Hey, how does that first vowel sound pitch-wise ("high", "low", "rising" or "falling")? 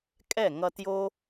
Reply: falling